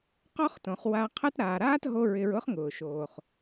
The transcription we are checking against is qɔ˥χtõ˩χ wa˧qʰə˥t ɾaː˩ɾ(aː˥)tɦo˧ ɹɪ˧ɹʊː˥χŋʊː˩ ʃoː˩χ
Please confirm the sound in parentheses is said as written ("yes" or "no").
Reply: yes